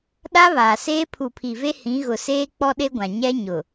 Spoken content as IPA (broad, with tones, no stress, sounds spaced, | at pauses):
ɗ a˦ β aː˨ s eː˦ pʰ u˨ pʰ i˨ v e˦ h ĩ˨˦ ɣ ʊ˨ s eː˦ k͡p ɔ˦ ɗ e˦ ɡʷ ã˨ ɲ ɛ˦ ɲ ʊ˨